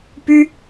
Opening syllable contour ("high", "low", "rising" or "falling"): high